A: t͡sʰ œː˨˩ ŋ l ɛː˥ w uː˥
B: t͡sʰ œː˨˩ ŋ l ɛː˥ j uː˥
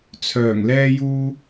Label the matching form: B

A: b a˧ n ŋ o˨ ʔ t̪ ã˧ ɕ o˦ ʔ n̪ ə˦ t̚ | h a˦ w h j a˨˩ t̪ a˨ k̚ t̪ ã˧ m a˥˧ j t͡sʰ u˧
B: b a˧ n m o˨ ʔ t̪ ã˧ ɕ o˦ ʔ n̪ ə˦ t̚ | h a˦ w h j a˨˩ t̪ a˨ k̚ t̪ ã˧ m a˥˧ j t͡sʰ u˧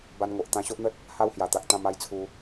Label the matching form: A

